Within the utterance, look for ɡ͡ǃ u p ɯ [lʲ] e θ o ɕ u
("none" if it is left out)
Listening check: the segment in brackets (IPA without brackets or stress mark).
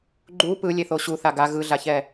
lʲ